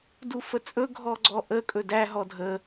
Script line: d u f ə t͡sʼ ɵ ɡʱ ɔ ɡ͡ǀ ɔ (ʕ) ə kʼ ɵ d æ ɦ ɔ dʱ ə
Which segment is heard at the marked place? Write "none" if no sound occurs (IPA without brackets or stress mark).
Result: ʔ